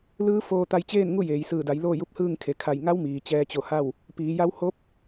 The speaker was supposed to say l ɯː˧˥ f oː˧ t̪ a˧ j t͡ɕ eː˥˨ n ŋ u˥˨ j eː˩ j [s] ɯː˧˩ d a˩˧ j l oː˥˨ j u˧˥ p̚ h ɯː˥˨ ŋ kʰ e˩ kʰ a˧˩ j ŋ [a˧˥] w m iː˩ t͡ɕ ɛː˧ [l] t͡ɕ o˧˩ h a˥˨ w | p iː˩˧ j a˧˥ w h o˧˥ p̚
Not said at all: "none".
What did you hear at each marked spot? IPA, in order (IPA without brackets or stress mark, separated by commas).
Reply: s, a˧˥, none